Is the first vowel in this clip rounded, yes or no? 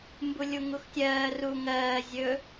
yes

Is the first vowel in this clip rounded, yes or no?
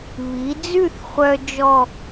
no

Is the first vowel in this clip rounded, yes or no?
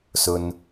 yes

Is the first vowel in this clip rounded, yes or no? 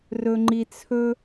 yes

